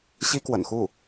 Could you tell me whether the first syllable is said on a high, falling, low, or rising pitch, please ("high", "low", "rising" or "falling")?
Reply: high